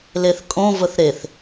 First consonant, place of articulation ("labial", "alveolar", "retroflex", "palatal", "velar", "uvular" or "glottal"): alveolar